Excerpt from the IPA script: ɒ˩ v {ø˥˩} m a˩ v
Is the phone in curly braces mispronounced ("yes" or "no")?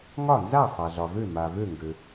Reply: no